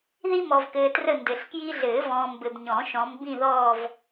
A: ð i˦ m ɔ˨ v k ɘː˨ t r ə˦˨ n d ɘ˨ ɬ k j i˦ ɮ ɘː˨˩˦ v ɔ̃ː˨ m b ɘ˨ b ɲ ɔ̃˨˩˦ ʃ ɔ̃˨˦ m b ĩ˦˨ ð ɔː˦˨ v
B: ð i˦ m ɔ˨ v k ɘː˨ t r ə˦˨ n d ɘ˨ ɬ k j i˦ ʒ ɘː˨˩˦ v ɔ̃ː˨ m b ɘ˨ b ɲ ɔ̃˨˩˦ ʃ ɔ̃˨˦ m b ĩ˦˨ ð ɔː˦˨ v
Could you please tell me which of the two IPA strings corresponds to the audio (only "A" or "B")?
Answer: A